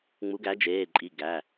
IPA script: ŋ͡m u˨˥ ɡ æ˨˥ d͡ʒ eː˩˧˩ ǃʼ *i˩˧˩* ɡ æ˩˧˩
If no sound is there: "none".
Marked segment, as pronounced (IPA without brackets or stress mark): i˩˧˩